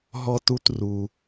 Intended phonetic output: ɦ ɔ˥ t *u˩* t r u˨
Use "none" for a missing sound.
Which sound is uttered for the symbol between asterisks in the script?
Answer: u˥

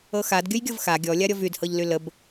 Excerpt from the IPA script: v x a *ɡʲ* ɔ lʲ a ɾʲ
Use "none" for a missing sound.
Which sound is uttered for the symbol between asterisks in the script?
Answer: ɡʲ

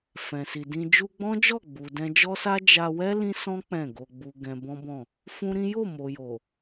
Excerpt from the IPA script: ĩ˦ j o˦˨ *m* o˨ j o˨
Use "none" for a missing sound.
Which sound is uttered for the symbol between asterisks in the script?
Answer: m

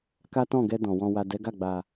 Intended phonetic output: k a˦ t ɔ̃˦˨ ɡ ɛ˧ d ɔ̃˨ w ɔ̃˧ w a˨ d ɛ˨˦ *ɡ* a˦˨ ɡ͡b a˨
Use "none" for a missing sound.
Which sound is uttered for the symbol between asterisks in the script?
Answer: ɡ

